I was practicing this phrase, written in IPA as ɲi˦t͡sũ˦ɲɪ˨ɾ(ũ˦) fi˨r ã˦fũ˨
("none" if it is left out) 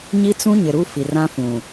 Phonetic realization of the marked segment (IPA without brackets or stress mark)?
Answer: u˦